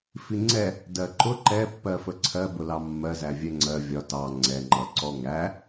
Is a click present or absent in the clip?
present